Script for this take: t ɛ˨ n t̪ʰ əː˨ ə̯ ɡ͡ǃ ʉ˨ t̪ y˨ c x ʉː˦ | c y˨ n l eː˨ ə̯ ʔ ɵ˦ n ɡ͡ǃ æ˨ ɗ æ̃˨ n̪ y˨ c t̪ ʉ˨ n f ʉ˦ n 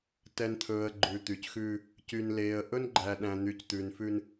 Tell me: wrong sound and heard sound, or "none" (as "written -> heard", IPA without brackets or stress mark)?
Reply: əː˨ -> ɵː˨